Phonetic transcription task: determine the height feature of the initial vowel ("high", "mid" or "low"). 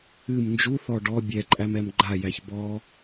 high